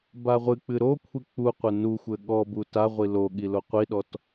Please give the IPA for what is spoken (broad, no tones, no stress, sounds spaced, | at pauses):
b a ʁʷ ɨ k͡p ɨ ɾ o kʷʰ i k͡p u qʷ ɘ n u xʷ ɘ ɠ ɔ b u t a ʁʷ i l o ɠ i l o qʷ i ɗ ɔ t